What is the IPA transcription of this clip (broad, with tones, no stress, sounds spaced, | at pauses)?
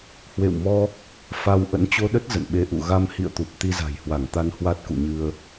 h w ḛ˧˨ w m ɔ˧ | f a˧ w ʔ ə̰˧˥ n t͡ɕ o˧ ɗ ə˦˥ t̚ z ə̰˧˨ n ɓ e˧ ʔ ṵ˧˨ ɣ a˧ m h ḭ˧˨ ə̯ t̪ u˨˩ p̚ t̪ i˧ z a̤˨˩ j h w a˧˩ ŋ t̪ a˧ n h w a˦˥ t̚ k ṵ˧˨ ɲ ɨ˧ ə̯